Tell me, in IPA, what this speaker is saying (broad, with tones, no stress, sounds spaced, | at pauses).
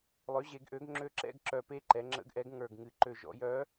lˠ ø˩˥ ʑ e˩˧ ɡ ʔ ø˩˥ ɡ ŋ͡ǁ ø˧˥ ǁ ɛ̰˥˧ ɡ ǁ œ˨˩ p e˥˧ ǃ ɛ˩˧ ŋ͡ǁ ə̰˧˥ ɡ ʔ ɛ˩˥ ɡ ŋ ə˞˨˩ ɡ ŋ ɨ˨˩ ǃ ø˨˩ ʒ ɔ̰˩˧ j œ˧˥